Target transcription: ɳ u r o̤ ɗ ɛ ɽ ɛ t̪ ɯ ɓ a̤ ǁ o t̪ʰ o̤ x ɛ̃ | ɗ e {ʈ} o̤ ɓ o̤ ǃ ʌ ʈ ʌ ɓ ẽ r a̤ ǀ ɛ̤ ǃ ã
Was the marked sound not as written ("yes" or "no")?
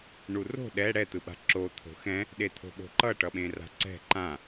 yes